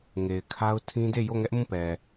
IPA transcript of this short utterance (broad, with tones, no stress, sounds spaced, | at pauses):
ŋ e˨ ɪ̯ kʰ a˦ ʊ̯ tʰ ĩ˦ d e˦˨ j o˦˨ ŋ ɛ˦ ʔ m ũ˦˨ p ɛ˨